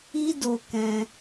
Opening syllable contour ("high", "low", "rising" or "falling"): high